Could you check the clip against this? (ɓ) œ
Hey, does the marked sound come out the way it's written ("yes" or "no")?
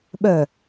yes